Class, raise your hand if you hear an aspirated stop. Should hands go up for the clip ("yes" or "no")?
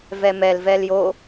no